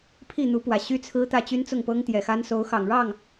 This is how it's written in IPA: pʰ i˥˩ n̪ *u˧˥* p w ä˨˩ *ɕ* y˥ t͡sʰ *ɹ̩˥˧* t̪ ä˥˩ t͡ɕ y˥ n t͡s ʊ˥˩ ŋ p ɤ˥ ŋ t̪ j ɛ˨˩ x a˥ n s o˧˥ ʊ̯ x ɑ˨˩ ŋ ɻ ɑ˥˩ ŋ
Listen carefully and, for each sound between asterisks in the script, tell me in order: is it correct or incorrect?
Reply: correct, correct, incorrect

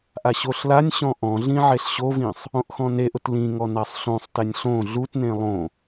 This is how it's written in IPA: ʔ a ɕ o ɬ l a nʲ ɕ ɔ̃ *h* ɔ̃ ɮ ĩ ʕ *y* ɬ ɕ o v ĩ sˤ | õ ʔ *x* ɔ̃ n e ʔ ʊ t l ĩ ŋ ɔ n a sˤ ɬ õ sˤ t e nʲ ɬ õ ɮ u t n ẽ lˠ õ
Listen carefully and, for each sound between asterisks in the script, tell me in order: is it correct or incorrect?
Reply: incorrect, incorrect, correct

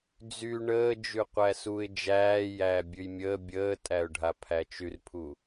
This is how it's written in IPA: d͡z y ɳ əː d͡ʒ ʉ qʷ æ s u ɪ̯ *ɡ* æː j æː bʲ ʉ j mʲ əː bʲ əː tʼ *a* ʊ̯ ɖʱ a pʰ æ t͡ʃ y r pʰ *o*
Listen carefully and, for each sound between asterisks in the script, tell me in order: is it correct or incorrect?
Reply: incorrect, incorrect, incorrect

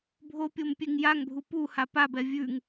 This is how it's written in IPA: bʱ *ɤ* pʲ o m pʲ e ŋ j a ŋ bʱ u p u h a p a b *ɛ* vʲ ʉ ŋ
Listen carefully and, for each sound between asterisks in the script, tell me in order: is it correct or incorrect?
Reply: incorrect, correct

